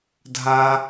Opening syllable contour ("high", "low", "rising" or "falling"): high